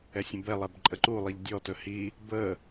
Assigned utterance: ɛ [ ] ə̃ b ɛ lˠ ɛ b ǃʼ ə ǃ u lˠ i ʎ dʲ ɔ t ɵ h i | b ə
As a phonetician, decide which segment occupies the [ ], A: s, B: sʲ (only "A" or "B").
B